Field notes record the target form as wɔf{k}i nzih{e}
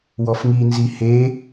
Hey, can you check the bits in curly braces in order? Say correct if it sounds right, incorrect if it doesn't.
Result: incorrect, correct

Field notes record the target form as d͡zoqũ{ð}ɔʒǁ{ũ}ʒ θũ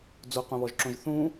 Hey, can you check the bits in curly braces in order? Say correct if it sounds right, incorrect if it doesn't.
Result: incorrect, incorrect

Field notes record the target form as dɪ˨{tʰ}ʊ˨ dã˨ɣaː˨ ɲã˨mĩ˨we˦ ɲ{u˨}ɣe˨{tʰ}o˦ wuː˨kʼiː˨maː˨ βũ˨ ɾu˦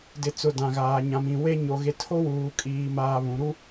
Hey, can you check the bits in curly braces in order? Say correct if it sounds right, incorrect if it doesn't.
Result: incorrect, incorrect, correct

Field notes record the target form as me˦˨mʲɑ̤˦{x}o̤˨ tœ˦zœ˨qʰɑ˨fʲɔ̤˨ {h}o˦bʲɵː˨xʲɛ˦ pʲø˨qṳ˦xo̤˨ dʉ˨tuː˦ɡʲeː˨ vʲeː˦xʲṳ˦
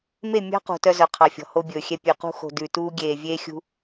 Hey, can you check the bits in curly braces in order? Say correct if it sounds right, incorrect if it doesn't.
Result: incorrect, correct

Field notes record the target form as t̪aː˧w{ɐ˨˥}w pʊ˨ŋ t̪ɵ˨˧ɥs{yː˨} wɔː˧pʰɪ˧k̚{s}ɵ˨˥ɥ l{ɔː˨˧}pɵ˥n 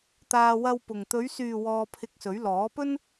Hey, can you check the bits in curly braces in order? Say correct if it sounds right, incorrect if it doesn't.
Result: incorrect, correct, correct, incorrect

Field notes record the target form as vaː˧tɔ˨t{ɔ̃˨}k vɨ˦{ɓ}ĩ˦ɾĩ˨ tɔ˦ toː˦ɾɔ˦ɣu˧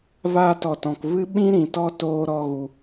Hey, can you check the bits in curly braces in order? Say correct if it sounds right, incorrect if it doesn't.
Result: correct, correct

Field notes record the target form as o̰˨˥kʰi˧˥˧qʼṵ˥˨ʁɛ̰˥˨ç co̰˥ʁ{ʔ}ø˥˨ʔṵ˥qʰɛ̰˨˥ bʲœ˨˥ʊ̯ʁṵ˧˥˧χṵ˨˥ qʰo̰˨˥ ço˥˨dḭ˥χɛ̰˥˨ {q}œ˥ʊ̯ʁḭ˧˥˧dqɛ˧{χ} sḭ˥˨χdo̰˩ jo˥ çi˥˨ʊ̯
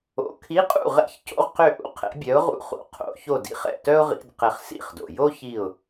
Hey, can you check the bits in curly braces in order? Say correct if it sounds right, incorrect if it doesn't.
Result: incorrect, incorrect, correct

